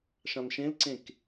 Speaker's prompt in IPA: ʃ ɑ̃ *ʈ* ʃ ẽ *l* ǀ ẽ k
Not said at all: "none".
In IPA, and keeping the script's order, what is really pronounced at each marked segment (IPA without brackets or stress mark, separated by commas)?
n, l